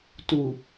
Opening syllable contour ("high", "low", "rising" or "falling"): low